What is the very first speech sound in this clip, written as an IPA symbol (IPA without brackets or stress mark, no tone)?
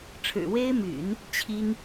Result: ʈ͡ʂʰ